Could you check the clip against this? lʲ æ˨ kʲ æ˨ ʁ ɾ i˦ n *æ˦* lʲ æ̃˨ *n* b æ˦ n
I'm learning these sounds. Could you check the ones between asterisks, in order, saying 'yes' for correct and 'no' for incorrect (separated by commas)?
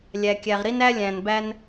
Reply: yes, yes